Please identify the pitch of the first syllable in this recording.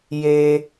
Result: low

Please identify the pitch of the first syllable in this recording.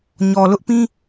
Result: low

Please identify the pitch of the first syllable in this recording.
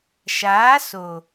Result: rising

